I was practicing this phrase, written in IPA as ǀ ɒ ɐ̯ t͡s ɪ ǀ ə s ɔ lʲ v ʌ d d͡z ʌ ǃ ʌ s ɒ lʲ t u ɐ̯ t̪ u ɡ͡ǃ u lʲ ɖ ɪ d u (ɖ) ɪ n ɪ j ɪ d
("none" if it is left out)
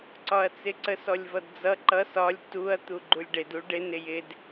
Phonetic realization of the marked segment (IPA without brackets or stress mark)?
ɖ